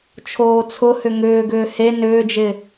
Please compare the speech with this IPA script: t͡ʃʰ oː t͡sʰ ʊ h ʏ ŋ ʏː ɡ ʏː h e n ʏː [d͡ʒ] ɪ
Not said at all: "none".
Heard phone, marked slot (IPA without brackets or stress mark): d͡ʒ